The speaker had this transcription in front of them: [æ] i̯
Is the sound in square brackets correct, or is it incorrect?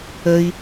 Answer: incorrect